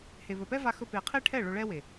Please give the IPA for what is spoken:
h e˨ β ɵ˨ p ɛ˦ v a˧ x ɵ˧ p e˨ qʰ e˦ ʈʰ ɛ˦˨ ɭ ɵ˧ ɭ ɛ˦ w e˨

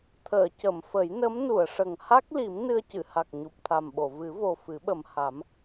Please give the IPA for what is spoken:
t̪ʰ əː˨˩˨ c ə˨˩˨ m f ə˨˩˦ j n ə˧˥ m n u˨˩˨ ə̯ ʂ ə˨˩ ŋ h a˦˥ k̚ l i˨˩˦ m n ɨ˧ ə̯ c ɨ˨˩˨ h a˨˩ k̚ ɲ u˨˩ p̚ t̪ʰ a˨˩ m ɓ o˨˩˨ v ɨ˨˩˦ v o˨˩ f ɨ˨˩˦ ɓ ə˨˩ m h a˨˩˦ m

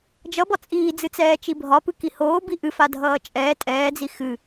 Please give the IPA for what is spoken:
d͡ʒ ʌ b ɒ t͡sʼ iː d͡z ɨ t͡s ɛː t͡ʃ i bʱ ɒ p ɨ k i h oː b i ʔ ɨ f a dʱ ʌː t͡ʃʼ ɛː tʼ ɛː d͡z i x ɨ

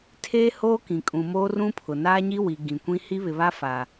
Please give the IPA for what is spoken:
tʰ eː˦ h oː˦ k ĩ˨ kʼ ũ˨ m oː˦ r ũ˦ pʰ ʊ˨ n aː˦ ɲ i˦ w i˨ ɡ ĩ˨ kʷ ĩ˦ h i˦ β ɪ˨ β a˦ f a˨

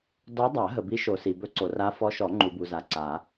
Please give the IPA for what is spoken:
d ɔ˧˥ dˤ a˨˩˦ ɦ ə˨ b i˧˥ ʃ o˨ s i˨ b ɵ˧˥ ǀ o˨ r a˧˥ f ɔ˧˥ ʃ ɔ˨˩˦ ŋ͡ǃ u˨ b u˨ z a˨ ǀ a˨˩˦

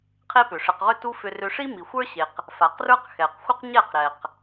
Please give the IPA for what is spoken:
qʰ e˦ p ʏ˨ ʂ ɘ˧ q ʁ ʏ˦ t u˦ f ʏ˧ r ʏ˧ ʂ i˦ m i˨ xʷ ə˞˦ ɕ e˨ q | f a˨ q r ə˞˦ q x ɛ˨ q xʷ ə˦ q ɲ ɛ˦˨ q ɾ ɛ˨ q

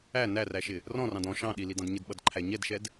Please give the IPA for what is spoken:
æ n æ r æ ʃ ɪ | r ɔ̃ r ɑ̃ d ɔ̃ ʃ ɑ̃ ɗ i l i d ɑ̃ d ɲ ɪ d ɓ ʌ d ǃʰ æ ɲ ɛ d ʃ ɛ d

